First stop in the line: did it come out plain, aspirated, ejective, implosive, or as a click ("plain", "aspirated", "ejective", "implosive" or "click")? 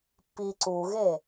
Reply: plain